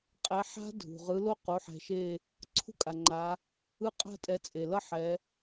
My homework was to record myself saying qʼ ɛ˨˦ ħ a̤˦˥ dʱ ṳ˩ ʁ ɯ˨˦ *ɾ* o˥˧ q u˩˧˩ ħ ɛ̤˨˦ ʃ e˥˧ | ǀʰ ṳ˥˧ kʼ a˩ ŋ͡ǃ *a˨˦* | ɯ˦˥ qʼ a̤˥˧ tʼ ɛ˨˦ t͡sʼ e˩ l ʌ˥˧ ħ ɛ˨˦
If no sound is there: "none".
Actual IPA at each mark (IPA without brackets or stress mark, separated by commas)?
l, a˨˦